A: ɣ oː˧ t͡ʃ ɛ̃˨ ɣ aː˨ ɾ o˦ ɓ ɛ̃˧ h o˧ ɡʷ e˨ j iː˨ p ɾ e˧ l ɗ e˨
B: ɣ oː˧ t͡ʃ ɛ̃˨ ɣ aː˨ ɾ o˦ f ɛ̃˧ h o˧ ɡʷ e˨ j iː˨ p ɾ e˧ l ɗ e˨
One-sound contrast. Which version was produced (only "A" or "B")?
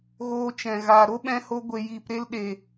A